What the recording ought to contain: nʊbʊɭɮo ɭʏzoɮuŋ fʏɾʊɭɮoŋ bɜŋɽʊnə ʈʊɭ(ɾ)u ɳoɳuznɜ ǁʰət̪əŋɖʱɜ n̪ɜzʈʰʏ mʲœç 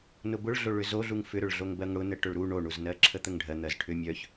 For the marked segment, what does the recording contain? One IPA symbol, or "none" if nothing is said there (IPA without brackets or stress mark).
ɾ